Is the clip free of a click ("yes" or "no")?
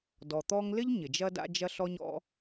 yes